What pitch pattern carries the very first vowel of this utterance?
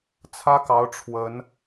high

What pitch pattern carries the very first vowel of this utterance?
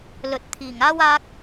low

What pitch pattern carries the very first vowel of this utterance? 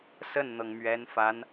falling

